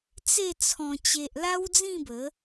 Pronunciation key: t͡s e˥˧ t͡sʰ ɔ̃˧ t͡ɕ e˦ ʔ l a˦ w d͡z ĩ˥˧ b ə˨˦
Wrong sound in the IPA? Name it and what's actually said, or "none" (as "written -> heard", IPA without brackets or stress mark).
none